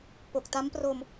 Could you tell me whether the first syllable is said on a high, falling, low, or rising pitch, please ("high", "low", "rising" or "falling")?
low